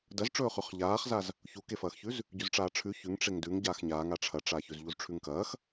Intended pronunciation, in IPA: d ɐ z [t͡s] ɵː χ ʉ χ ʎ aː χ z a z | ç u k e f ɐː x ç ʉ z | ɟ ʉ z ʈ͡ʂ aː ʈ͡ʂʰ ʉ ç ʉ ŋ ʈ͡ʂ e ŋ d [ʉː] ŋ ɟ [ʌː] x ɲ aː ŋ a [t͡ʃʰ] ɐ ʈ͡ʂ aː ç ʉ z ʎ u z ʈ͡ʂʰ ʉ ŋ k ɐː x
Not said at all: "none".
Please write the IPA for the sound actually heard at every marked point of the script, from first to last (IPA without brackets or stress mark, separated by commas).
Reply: ʈ͡ʂ, ʉ, aː, ʈ͡ʂʰ